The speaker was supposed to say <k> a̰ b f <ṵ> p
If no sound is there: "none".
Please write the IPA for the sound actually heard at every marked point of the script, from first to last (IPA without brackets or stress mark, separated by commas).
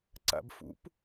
ǀ, ṵ